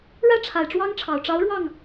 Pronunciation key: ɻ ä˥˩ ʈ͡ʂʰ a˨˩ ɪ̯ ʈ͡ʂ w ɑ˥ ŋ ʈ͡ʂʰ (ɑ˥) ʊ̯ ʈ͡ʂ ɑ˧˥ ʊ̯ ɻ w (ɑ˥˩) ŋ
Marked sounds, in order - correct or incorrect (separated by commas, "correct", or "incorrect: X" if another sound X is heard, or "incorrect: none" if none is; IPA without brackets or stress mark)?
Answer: incorrect: ɑ˨˩, correct